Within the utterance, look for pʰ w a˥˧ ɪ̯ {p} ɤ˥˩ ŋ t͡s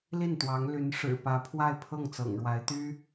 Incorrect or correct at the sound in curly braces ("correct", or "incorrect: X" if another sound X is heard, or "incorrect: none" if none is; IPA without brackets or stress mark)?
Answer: incorrect: pʰ